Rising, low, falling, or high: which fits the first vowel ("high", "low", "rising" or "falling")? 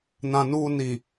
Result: low